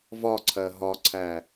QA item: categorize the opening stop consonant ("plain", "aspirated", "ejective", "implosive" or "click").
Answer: click